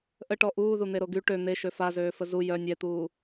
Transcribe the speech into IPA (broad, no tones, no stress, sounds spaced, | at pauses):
ʔ ə ʈ ɔ ʔ uː ð u n̪ e ɾ o ɡ y ʈ ø n̪ e ʃ ø f a z øː f ə z u j œ nʲ ɛ t̪ uː